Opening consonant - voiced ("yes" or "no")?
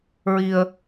yes